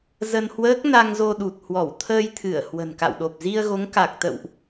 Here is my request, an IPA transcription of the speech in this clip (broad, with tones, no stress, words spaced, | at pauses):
zə˧nhwəː˦˥k̚ na˧ŋzo˧ɗu˨˩t̚ hwɔ˧˩wt̪ʰəː˧jt̪ʰɨ˧˩ə̯ hwə̤˨˩nka̰˧˨wɗo˨˩p̚ zi˧ə̯ɣo˨˦ŋka˨˩k̚t̪ə̰˧˨wʔ